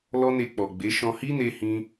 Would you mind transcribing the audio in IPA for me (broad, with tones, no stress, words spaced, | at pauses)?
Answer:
lɔ˦ne˧k͡pɔ˨ɡ͡be˨˦ ʃɔ̃˧hi˦ne˧hĩ˧